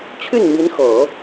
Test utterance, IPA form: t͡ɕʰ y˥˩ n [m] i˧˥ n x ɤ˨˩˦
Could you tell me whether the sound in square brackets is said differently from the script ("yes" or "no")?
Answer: no